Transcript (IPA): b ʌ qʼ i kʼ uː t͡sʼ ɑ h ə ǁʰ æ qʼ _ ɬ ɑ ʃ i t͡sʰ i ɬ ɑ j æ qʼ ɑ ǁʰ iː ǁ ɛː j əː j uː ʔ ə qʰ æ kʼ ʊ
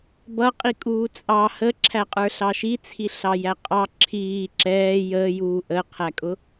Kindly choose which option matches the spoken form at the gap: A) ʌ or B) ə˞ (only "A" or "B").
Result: B